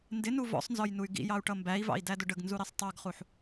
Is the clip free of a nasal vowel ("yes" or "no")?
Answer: yes